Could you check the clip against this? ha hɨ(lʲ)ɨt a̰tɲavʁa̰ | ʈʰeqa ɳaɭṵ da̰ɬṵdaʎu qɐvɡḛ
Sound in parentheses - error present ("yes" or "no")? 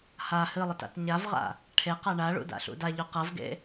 yes